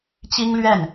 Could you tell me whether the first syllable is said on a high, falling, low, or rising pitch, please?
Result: high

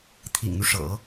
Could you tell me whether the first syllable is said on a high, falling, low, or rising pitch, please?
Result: low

